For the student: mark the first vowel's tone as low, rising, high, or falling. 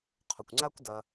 low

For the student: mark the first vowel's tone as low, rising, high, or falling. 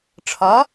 rising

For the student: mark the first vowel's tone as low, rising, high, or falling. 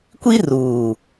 high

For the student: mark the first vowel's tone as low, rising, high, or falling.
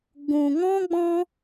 low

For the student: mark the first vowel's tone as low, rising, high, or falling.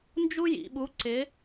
high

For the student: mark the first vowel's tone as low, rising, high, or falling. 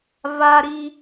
high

